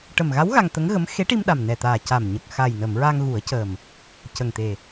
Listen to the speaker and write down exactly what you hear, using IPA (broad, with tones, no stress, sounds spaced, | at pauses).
ʈ ə˨˩ m ɣ a˧˥ w ɣ a˧ ŋ t̪ ə˧˥ ŋ ɣ ə˧˥ m x e˧˥ ʈ i˧ m ɗ a˨˩ m n ɛ˨˩ t̪ aː˨˩ c a˨˩ m ɲ ə˨˩ k̚ x a˨˩ j n ə˨˩˨ m ɹ a˧ ŋ ɣ u˨˩˦ ə̯ c əː˨˩ m | c ə˨˩ ŋ t̪ e˨˩